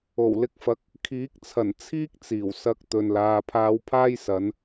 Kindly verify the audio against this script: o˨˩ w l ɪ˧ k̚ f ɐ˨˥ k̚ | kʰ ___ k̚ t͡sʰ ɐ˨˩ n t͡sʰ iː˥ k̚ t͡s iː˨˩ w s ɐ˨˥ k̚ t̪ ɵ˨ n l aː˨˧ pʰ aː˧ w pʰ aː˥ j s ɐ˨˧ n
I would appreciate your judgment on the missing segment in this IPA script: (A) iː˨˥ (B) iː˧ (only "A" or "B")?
A